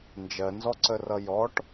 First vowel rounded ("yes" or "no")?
no